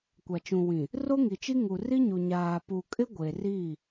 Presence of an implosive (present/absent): absent